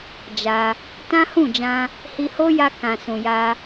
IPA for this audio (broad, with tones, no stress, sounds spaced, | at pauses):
d͡ʒ a˧ | t ã˦ h ũ˦˨ d͡ʒ ã˧ | h i˧ h o˦ j a˧ k ã˨ s ũ˨ j a˧